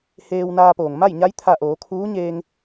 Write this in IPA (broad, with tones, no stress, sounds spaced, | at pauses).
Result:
h eː˧ w n aː˧ p oː˩ ŋ m a˥˨ j ɲ a˧˥ j t̪ʰ a˧˩ ʔ oː˩˧ kʰ uː˧˥ ɲ eː˧ ŋ